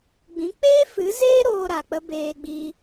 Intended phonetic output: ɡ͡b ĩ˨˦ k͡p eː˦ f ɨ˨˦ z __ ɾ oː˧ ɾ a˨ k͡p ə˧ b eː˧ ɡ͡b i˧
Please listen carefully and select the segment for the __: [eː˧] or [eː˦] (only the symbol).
eː˦